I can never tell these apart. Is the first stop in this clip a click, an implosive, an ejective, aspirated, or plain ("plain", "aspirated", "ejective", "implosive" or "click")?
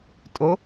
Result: ejective